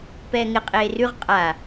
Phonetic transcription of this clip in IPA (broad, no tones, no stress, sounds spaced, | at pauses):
p ɛː ŋ ɪ qʼ eː r ʉ ʁ qʼ a